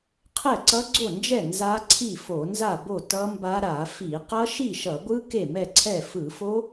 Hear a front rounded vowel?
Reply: no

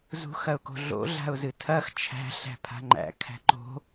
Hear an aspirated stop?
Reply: yes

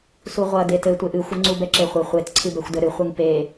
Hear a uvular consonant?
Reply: yes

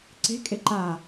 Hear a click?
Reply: yes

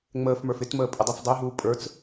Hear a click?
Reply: no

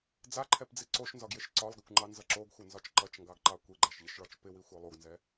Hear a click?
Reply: yes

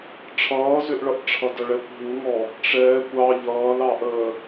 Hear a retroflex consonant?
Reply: yes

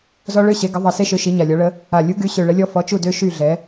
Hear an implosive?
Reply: no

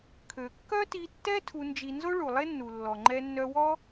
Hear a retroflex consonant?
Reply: yes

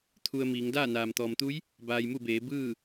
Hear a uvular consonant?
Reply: no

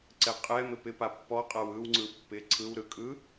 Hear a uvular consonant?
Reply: yes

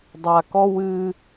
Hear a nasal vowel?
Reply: no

